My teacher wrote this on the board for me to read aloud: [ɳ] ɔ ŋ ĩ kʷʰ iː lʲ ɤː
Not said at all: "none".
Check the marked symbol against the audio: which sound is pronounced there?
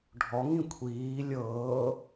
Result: ɖʱ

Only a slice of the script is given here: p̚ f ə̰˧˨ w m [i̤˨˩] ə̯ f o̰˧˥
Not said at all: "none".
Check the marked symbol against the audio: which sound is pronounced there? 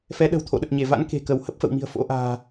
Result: i̤˨˩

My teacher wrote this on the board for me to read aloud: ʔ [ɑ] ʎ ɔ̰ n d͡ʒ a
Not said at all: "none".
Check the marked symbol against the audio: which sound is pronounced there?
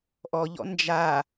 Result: ɔ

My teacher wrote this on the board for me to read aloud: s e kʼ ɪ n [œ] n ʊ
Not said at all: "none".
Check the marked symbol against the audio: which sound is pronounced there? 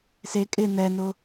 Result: ɛ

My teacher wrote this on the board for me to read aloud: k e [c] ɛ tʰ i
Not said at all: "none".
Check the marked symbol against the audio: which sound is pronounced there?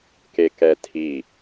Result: k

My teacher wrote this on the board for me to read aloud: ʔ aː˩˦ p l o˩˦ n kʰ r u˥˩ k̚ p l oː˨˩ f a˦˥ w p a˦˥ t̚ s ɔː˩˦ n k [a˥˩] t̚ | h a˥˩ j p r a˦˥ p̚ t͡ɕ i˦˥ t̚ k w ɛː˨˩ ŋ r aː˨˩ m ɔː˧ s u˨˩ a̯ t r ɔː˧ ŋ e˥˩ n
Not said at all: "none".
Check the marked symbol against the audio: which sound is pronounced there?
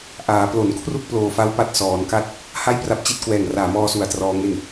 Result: a˥˩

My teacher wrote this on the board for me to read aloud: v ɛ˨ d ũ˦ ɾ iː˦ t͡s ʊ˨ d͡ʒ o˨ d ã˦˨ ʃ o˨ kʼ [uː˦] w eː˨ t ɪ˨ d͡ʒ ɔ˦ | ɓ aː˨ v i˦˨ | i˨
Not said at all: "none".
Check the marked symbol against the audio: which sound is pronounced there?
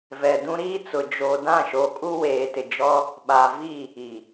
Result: u˦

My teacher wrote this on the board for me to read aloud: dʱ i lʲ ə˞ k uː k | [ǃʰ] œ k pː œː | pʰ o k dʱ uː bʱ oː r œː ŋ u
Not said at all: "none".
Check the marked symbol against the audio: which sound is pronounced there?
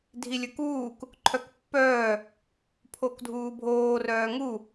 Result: ǃʰ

